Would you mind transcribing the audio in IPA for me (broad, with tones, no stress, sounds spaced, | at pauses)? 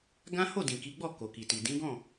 ɡ ã˦ h o˦˨ d ĩ˨ k i˨˦ ɡ͡b ɔ˦˨ k o˨ k i˨ t i˨ d ĩ˨˦ ɡ ɔ̃˦˨